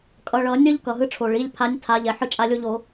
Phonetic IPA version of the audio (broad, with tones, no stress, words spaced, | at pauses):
kʼʌ˩˧˩ɭʌ˨˩˦nʲʌ˦ʎ kʌ˩ɦɯ˦˨ʈ͡ʂʰo˩ ɭi˩˧˩lʲpʰa˨˦nʲ tʰa˨˦ʎɛ˩ ħɯ˦˨t͡ʃʼa˦˨lʲo˦ʎo˨˩˦